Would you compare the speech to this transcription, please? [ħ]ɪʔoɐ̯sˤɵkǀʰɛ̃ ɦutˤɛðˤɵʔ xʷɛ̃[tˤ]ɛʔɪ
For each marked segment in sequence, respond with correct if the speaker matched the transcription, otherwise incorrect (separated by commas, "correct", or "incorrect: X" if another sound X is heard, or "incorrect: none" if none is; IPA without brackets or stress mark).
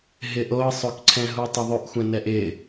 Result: incorrect: ɦ, incorrect: n